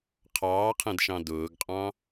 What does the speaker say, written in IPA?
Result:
qʰ ɑː qʰ ɛ̃ d ʃ ɑ̃ d ʊː ɡ qʼ ɑ̃

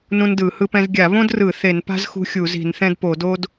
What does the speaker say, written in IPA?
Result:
n ũ˥ n d ɯ˧˩˧ h ɯ˥ p ɛ̃˥ z ɡʲ a˧˩˧ β õ˥ d r ɯ˧˩˧ θ e˧˩˧ n p a̤˥ z x ṳ˥ xʲ u˧˩˧ z i̤˧˩˧ n θ ɛ̃˥ d p o˧˩˧ d o˥ d

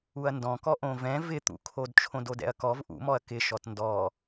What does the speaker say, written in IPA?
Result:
u ɐ̯ n d ɔ̃ k ɔ ʔ õ v ɛ̃ v ɪ t̪ ṵ kʰ o d t͡ʃʰ õ d o d ɛ̰ ɐ̯ k ɔ v ʔ ṵ m ɔ ɐ̯ k ɪ ʃ ɔ t n d ɔ

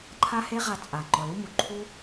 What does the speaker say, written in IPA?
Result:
ǃʰ a˦ h e˦ ʁ a˧ t͡sʼ a˨ ŋ͡ǃ ɔ˨ l u˦ m u˨ ǃʰ u˦

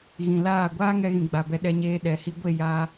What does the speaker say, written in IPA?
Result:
ɣ ĩ˨ l aː˦˨ ɡʷ aː˦ ŋ ɛ˧ ɣ ĩ˨ ɡ͡b a˨ b ɛ˧ ɗ ɛ˧ ɲ eː˧ ɗ ɛ˨ h i˧ ɡʷ e˦˨ j a˧

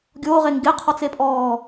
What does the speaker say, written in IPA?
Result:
ɡʲ oː ʁ e ŋ ɡ e qʰ ɔ t͡s e pʼ ɔː

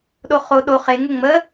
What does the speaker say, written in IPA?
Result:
ɗ o χ o ɗ o χ e ŋ ə ŋ͡m ə

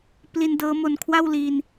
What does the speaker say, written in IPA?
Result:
p l i˧ n d ɤː˦˥ m o˧ n kʰ w a˥˩ w l i˧ n

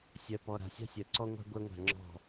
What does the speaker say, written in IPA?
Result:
sʲ ɜ˨ p ɔ˨ ɾ a̤˨ sʲ a̤˦ sʲ ɜ˨ ǀ ɔ˦ ŋʷ a̤˦ ɡʷ ɜ˦ ŋʷ a̤˦˨ ŋ͡ǁ ɔ̤˦˨

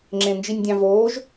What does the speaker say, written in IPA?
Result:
ŋ͡ǁ ẽ n d͡ʒ i nʲ dʲ ɑ̃ v oː ʒ

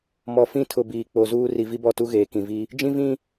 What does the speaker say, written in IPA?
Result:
m ɔ˨ f ĩ˦˨ tʰ ʊ˨ b iː˨ k͡p o˨ z uː˦ r i˨ v i˦ b ɔ˦˨ t u˦ ɣ eː˨ k ĩ˨ v i˦ | d͡ʒ ĩ˦ v ĩ˦

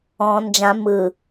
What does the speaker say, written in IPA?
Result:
ɔ̃ n d͡ʒ ã m ɯ

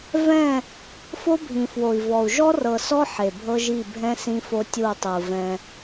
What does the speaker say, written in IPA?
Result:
v ɛ̃˦˨ | f o˦ bʱ ĩ˨ f w o˨ i̯ v ɔ˨ u̯ ʒ ɔ˦ r ɤ˨ s ɔ˦ ħ e˨ bʱ ɤ˦ ʒ i˦˨ bʱ ɛ̃˦ s ĩ˦ f o˦ tʲ u˦˨ tˤ ɯ˨ v ɛ̃˦

